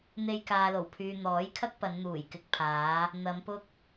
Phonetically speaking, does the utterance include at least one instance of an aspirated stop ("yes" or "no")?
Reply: yes